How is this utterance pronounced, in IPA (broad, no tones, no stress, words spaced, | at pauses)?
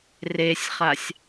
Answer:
resʲχasʲ